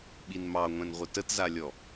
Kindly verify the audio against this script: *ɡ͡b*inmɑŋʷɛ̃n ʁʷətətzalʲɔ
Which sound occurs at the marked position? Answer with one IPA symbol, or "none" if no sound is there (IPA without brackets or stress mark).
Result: ɓ